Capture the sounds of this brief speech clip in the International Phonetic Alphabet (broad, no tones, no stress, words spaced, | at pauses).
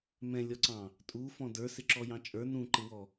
mɛ̃lʲɔǀɑ̃ | tʼu fɔ̃də˞sɪǁɔ jɑ̃t͡ʃʼə˞ nũǃɪwɔ